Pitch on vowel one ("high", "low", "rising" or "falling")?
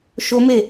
high